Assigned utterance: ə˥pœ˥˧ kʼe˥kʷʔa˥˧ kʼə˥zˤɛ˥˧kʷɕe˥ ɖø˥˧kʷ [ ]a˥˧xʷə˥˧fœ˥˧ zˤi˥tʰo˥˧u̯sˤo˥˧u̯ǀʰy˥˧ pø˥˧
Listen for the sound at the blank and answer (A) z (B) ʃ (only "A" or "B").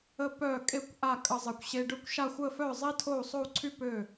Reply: B